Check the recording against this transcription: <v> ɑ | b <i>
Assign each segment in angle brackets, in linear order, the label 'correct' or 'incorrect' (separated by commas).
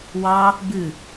incorrect, incorrect